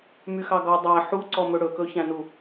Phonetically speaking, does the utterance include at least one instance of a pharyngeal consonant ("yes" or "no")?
yes